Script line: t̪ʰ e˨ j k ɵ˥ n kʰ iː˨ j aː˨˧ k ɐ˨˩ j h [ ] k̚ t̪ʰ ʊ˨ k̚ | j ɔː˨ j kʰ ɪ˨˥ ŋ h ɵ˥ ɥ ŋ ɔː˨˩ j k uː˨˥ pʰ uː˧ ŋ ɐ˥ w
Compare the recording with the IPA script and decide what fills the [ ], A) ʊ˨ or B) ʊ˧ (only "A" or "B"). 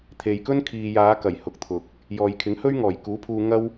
A